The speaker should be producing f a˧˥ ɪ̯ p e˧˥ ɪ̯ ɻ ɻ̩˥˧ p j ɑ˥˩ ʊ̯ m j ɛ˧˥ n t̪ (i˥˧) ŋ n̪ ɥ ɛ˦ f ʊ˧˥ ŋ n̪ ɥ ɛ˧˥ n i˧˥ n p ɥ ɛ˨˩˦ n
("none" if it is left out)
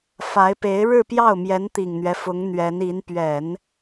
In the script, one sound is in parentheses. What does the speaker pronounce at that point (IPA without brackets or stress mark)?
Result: i˨˩